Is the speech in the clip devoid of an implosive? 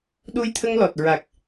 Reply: no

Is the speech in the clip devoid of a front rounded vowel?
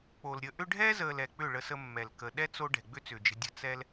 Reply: no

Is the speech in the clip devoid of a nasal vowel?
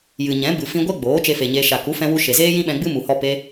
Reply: no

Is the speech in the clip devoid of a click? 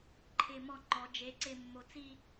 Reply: no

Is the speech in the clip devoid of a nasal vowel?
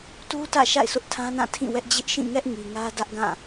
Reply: no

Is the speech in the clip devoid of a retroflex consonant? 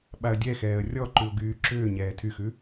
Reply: yes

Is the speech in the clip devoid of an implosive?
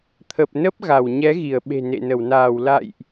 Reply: no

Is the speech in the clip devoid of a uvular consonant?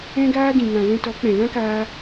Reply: yes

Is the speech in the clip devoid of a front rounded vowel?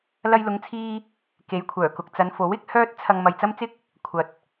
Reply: no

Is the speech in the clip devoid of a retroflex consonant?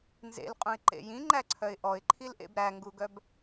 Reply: yes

